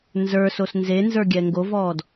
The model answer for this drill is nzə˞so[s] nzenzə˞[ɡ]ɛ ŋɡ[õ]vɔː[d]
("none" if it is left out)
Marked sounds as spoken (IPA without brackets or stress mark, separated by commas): s, ɡʲ, o, d